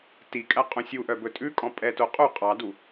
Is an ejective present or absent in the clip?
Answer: present